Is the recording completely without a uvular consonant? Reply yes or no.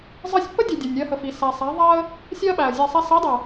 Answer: yes